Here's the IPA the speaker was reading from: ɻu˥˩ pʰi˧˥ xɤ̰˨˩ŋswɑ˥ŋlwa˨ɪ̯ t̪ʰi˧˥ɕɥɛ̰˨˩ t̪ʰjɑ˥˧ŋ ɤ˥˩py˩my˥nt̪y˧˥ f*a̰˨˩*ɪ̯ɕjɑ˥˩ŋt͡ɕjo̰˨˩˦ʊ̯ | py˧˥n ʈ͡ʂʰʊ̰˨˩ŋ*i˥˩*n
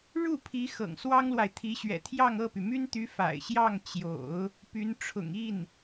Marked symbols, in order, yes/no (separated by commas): yes, yes